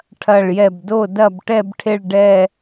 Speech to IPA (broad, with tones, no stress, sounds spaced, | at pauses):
ʈʰ ɐ˧˩ ɭ j ɛ˧˩ b d o˥˨ d ɐ˥˨ b ʈ ɛ˥˨ b ʈʰ e˥˨ ɭ ɖ ɛ˥˨